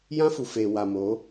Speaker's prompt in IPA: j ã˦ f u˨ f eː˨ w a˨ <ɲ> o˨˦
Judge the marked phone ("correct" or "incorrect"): incorrect